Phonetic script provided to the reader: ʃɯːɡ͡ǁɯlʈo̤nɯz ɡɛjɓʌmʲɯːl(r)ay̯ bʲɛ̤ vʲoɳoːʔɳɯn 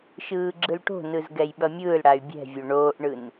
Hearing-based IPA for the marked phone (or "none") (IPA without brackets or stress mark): ɽ